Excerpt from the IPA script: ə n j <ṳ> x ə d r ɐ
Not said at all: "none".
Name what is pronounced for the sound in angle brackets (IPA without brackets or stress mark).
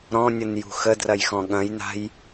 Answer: ṳ